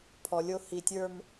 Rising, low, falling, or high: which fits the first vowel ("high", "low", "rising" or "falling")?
low